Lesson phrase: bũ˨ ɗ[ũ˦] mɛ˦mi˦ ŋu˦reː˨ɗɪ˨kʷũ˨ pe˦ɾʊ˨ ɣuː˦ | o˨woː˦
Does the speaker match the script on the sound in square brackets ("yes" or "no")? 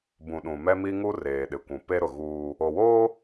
no